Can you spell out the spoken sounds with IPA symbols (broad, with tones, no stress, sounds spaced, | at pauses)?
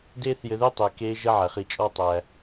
d eː˦ θ j ɘ˨ ð e˥ tˤ e˩ k eː˦ ʒ ə˦ ʕ æ˩ χ i˨ t͡ʃʼ ɔ˦ tˤ æ˨